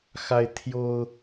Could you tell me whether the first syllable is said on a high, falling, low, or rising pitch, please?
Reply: high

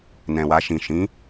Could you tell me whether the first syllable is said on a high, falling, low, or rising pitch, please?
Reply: low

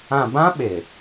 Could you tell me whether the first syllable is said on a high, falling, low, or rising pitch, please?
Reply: low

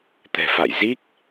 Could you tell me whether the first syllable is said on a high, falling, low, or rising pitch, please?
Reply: low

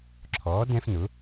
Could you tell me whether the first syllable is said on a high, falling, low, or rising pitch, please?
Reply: rising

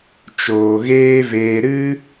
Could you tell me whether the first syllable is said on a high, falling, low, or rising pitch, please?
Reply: low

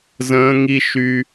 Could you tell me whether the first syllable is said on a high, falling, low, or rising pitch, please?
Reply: high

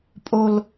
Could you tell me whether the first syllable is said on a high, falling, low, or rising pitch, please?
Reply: low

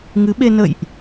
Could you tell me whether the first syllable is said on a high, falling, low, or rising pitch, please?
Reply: rising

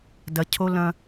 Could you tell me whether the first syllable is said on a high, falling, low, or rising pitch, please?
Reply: low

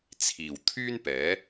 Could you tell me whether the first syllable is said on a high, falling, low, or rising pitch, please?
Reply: low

